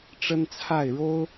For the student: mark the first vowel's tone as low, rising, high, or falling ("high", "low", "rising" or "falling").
high